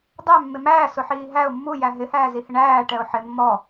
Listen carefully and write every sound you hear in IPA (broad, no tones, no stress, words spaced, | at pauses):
dˤæ mːɪmæː sʊħiːɦæʊ̯ mːu jæɦɪ hæːzihɪɳæː ʈɛʊ̯ħɪ mːɔ